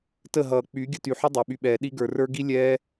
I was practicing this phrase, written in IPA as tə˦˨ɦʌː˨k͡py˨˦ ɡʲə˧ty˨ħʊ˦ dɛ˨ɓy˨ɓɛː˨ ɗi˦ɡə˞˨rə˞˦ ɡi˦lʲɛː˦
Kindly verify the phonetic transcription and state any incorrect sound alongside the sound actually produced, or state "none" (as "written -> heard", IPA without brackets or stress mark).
d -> dˤ